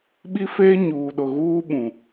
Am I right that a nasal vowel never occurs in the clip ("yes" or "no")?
no